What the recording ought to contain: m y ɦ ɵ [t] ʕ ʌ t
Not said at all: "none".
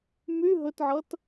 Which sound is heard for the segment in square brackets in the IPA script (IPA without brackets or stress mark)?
t